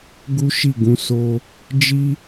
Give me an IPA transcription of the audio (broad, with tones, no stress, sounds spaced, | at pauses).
ɡ u˦ ʃ i˦˨ ɡ ũ˨˦ s o˦ | d͡ʒ i˦